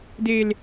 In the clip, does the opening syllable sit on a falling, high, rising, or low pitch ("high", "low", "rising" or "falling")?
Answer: low